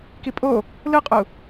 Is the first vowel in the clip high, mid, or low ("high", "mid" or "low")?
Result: high